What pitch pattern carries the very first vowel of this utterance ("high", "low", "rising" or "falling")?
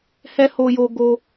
high